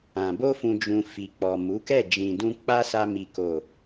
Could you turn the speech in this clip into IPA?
ã˨ b o˧ f ũ˨ d͡ʒ ũ˨ f i˨ k͡p ɔ˨ m u˨˦ k ɛ˦˨ d͡ʒ ĩ˨ d ũ˧ k͡p a˦ s a˧ m i˨ k o˨

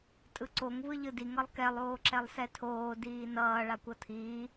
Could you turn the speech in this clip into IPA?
tʼ ɯ ǀ o ŋ v ɯ ʎ ɯ d i ŋ ʌ lˠ k ɛ lˠ oː ǁ ɛ lˠ s ɛ tʰ oː d iː n ʌː ɭ a kʷ ʌ tʰ iː

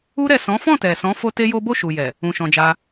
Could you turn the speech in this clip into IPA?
u˦ ɾ ɛ˦˨ s ɔ̃˨˦ f ɔ̃˦˨ t ɛ˨ s ɔ̃˨˦ f o˦ t e˦ j o˦ b o˦˨ ʃ u˨ j ɛ˨ | ũ˧ ʃ ɔ̃˧ d͡ʒ a˦

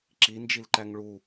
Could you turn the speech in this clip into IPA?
ǁ i n d͡ʒ i l ǃ æ ŋ ɭ u

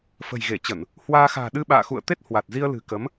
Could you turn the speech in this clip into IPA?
f ə̤˨˩ j ɣ e˧˩ t͡ɕ ə˧˩˨ n | h w aː˧ x a̤ː˨˩ ɗ ɨ˧ ɓ a̰ː˧˨ x ṵ˧˨ ə̯ t̪ e˦˥ t̚ h w a˨˩ t̚ z i˧ ə̯ l ɨ̤˨˩ k ə˨˦ m

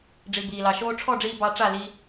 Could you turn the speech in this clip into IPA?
ɖ͡ʐ i˨ b iː˨ l ɑ˨ ʃ oː˧ ʈ͡ʂʰ ɔ˦˨ ɖ͡ʐ iː˧ b ɑ˧ ʈ͡ʂ a˦˨ l i˧

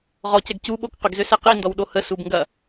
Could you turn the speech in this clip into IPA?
ʁ ɔ c ɛ ɡ c u ɓ o k q ʏ ɡ z ø s ɛ q i n d ɔ w ɗ o h ə s u b ŋ ɡ ɐ

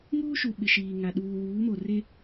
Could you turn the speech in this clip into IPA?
ŋ uː˦ ʃ u˨ ɓ ɪ˨ ʃ iː˨ ŋ a˨ ɗ uː˨ w uː˨˦ m o˨ r e˦

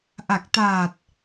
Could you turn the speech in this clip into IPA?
ʔ a˨˩ k̚ t aː˨˩ t̚

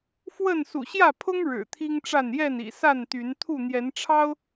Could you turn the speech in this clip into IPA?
f w ə˥˨ n s ṵ˨˩ ɕ j ä˥˨ pʰ ʊ˦ ŋ ɻ ɻ̩˨˩ t̪ʰ i˦ ŋ ʈ͡ʂ a˥˨ n j ɛ˥˨ n ḭ˨˩ s a˥˨ n t̪ y˨˦ n t̪ʰ u˥˨ n̪ j ɛ˨˦ n ʈ͡ʂʰ ɑ˦ ʊ̯

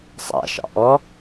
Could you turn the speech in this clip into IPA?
sˤ a̰ ʃ ɑ̰ ʔ ɔ

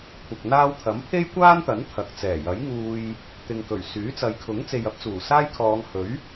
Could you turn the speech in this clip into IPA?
kʷʰ ɐ˨ k̚ n̪ aː˧ w t̪ʰ ɐ˨˥ m pʰ e˥ j kʷ aː˥ n t̪ ɐ˨˥ n t̪ʰ ɐ˨ k̚ t͡s ɛː˨˩ j ɐ˨˥ j ŋ uː˧ j | t̪ ɪ˨ ŋ k ɵ˨˩ ɥ s yː˨˥ t͡s ɐ˨˧ j kʰ ʊ˨˥ ŋ t͡s e˨ j ɐ˨˥ p̚ t͡s uː˨˩ s aː˥ j kʰ ɔː˨˧ ŋ h ɵ˨˥ ɥ

